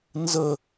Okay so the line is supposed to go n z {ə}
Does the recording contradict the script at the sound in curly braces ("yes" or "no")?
no